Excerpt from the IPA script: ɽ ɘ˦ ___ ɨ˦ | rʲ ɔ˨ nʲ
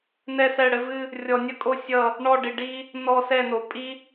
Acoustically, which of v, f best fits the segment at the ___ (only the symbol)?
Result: v